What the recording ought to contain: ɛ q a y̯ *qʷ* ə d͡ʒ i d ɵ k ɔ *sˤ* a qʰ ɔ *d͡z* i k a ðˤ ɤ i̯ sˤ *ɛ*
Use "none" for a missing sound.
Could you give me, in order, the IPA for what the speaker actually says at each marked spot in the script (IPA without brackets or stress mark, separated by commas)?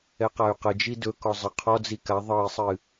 q, zˤ, d͡z, ɨ